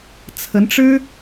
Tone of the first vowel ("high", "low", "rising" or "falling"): rising